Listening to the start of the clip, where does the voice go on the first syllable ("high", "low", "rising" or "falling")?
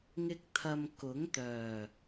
high